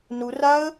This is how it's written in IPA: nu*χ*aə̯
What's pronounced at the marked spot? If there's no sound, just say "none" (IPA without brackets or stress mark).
r